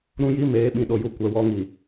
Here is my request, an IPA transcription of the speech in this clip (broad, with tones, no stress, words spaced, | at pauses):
ɾũ˦ji˦meː˨˦ ɓĩ˨ɗo˨ju˨ kʷɛ˨wɔ˨ŋi˨